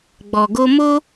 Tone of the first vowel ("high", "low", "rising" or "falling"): low